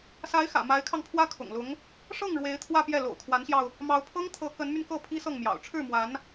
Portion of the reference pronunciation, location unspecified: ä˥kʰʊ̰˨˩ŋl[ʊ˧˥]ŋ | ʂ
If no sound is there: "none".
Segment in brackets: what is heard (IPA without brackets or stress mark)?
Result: ʊ˧˥